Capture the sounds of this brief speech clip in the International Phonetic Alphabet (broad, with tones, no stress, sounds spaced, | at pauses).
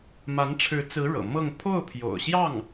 m a˧˥ n ʈ͡ʂʰ ɻ̩˧˥ t͡s ɹ̩˧˥ ɻ ɤ̰˨˩ m ɤ˥˧ ŋ pʰ o˥˩ ʊ̯ pʰ j o̰˨˩ ʊ̯ ɕ j ɑ˥˩ ŋ